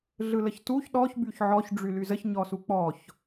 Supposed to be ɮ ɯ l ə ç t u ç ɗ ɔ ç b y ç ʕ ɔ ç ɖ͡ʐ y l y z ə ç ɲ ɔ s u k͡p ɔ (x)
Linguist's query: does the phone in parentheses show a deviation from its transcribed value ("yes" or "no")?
yes